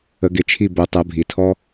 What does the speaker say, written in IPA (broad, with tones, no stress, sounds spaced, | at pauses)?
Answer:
ə˩˧ ɡ ɪ˩˧ t͡ʃʰ i˧˩ b o˩˧ tˤ ɜ˩˧ bʱ i˩˧ tʰ ɔ˧